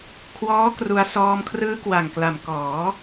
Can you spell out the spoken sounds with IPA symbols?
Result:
kʰwɔː˦˥ kru˧a̯ sɔː˧mkʰrɯː˦˥kwa˨˩ŋkla˩˦m kɔː˩˦

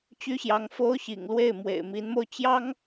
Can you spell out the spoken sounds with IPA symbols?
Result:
t͡ɕy˥ɕjɑ˧˥ŋ fo˥ʊ̯ɕḭ˨˩ŋlwe˥˩ɪ̯ mwḛ˨˩ɪ̯mi˧˥nmo˥˩ʊ̯ t͡ɕjɑ˥ŋ

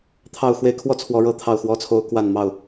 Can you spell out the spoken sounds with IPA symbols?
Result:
t̪ʰɑ˥˨ʊ̯xwe˦ɪ̯kʰwɔ˦ t͡sʰwɔ˨˦ɻɤ˥˨ t̪ʰɑ˥˨ʊ̯xwɔ˥˨t͡sʰo˦ʊ̯ kwa˥˨nmɑ˥˨ʊ̯

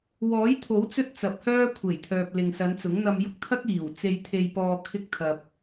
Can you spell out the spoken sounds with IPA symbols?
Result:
wɔː˨˥jt̪ʰo˨˥w t͡sɵ˥t̚t͡sɐ˨˥p̚hœː˥ kʷʰe˨˩jt̪ʰœː˨p̚ lɪ˨ŋsɐ˨˧nt͡sʊ˨˥ŋn̪ɐ˧m jʊ˥k̚t̪ʰɐ˥k̚ iː˨˩w t͡se˧jt̪ʰe˧jpɔː˧ kʰɪ˥k̚ t̪ʰɐ˧p̚

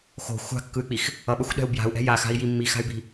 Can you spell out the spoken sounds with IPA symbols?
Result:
xo̤ xʷa̤kːɯy̯k͡pix | ʌɓʌxʷɗɛ̤u̯ bja̤u̯ʔɛ̤ jaxa̤i̯ji mːixa̤y̯bi̤

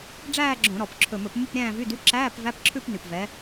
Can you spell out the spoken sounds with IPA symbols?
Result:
ɖ͡ʐæː˥˧ɡ͡ǁõ˧˩˧ ɾɔ˨˩p ǁʰɵ˨˩mɵ˧˩˧p mu˥˧pɾʲæ̃ː˥˧vy˧˥˧dy˧˥˧ ǁæː˧˥˧p væ˧˥˧pǁʰʉ˥˧pny˨˩pvɛ˨˦

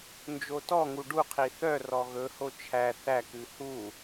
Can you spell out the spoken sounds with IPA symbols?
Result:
nd͡ʒotɔŋu ɖuqʰi θœrɔ ɣɵho t͡ʃʰæ θækʉ hu

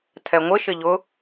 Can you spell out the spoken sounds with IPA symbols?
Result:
tʰɛŋʷɪ ʃɪʎʊ

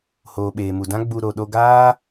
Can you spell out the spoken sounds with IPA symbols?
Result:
hoː˨ɓeː˨mu˨dã˦ ɡ͡bu˧ ɾo˨ɗo˧ɡaː˦

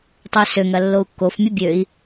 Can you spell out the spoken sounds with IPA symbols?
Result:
tˤœsøŋɐ lːou̯kːofmʲɐ bʲøi̯

